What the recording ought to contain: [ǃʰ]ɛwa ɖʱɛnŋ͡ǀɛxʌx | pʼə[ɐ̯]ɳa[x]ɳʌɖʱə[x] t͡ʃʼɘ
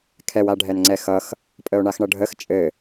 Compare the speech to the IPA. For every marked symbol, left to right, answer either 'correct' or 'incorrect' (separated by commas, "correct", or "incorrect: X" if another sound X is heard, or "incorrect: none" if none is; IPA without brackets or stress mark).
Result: incorrect: kʰ, incorrect: o̯, correct, correct